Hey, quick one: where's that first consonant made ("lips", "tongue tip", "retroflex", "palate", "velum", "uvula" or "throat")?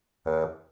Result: lips